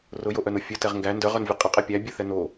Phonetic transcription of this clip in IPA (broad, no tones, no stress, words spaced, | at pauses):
rʊjoʔœnʊ fʲətɛʁ ŋɡæ ndœʁœnvʲə qʼəqʼɛ pʲæ bʲəθɛ no